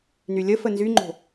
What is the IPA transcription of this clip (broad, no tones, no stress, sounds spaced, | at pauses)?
n y lʲ ə f ə n z y ŋ͡ǃ o̤